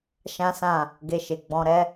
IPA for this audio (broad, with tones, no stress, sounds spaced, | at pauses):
ʃ ã˦ s ã˦˨ | ɡ e˧ ʃ e˨ ɡ͡b ɔ̃˧ ɾ ɛ˦